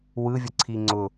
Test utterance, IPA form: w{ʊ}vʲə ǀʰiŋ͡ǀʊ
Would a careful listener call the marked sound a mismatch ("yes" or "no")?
yes